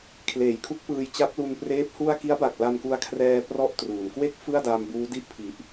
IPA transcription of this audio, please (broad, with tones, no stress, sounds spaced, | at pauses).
kʰ l eː˩˦ j kʰ u˦˥ k̚ p ɯː˧ j t͡ɕ a˦˥ p̚ l u˧ n p r eː˦˥ p̚ h u˥˩ a̯ k i˦˥ a̯ b a˨˩ k̚ l a˧ n k u˧ a̯ kʰ r ɛː˧ p r ɔ˥˩ ʔ t r uː˩˦ n k w e˥˩ k̚ f ɯ˥˩ a̯ d a˧ m b uː˦˥ d i˥˩ ʔ pʰ i˨˩ ʔ